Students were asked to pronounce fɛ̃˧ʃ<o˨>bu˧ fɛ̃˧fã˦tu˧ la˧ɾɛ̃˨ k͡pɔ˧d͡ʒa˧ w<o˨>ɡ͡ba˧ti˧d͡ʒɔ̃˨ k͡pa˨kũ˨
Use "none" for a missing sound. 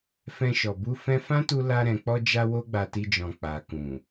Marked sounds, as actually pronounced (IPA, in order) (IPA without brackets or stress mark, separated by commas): ɔ˨, o˦